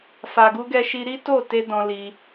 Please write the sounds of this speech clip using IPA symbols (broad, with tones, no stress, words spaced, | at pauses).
fa˨ɡu˧ɡɛ˧ ʃi˧ɾi˦ to˦˨te˧ dɔ̃˧li˧